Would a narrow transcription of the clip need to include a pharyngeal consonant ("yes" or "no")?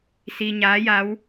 no